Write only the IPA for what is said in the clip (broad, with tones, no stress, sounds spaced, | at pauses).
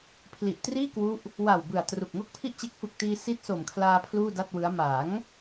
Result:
pʰ l i˨˩ ʔ t r iː˥˩ k w u˦˥ ʔ | w a˨˩ w b ɯ˨˩ a̯ t r u˨˩ k̚ ŋ o˥˩ k̚ pʰ i˥˩ ʔ t͡ɕ e˦˥ k̚ f ɯ˨˩ k̚ t iː˧ s i˦˥ t̚ s o˨˩ m kʰ l aː˧ pʰ l uː˥˩ d a˥˩ t̚ w ɯ˦˥ a̯ m a˩˦ ŋ